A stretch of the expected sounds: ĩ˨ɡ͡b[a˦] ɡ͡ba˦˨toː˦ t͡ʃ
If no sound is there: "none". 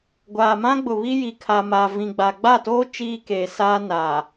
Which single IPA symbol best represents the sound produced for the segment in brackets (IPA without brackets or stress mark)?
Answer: a˨